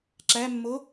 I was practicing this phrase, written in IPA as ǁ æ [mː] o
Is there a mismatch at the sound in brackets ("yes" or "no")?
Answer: no